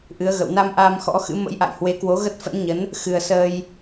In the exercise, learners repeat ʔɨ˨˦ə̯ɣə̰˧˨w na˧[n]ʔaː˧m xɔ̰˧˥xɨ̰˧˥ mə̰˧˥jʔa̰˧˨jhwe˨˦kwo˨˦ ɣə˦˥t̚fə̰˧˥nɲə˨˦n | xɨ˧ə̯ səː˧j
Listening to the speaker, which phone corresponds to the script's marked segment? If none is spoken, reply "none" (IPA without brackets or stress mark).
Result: m